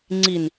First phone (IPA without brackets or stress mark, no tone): ŋ͡ǀ